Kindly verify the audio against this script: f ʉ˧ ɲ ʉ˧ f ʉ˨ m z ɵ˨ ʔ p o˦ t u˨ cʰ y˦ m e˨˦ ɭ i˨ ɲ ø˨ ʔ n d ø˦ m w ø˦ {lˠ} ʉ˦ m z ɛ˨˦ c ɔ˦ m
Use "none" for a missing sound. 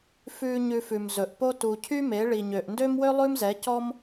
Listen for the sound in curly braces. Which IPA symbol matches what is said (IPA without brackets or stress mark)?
lˠ